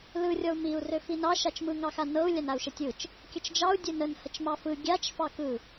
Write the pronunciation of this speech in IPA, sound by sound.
lɯ rʲɔu̯miu̯ røfinɑ ʃat͡ʃmɯ ŋɑxanɤu̯ lʲanau̯ʃətʲɯt͡ʃ | kʲət͡ʃd͡ʒɑu̯ dʲønən hət͡ʃmɑfɯ ɡʲat͡ʃ fɑkɯ

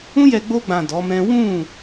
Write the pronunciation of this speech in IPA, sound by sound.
ũ˦jɛ˧ ɡ͡bo˧ɡ͡bã˨ dɔ˨˦mɛ̃˦ wũ˦˨

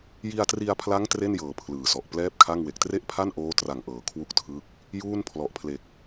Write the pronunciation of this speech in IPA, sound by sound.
ji˧a̯tri˧a̯pʰla˦˥ŋ tre˥˩njɤː˩˦ pʰlɯː˨˩sɔ˨˩ʔ plɛː˥˩p̚kʰa˥˩ŋwe˨˩k̚ tre˥˩ʔpʰa˥˩nʔoː˦˥ tra˨˩ŋʔɤː˩˦ kʰwu˦˥k̚tʰɯ˦˥k̚ | juː˥˩npʰlɔ˨˩ʔpʰle˨˩k̚

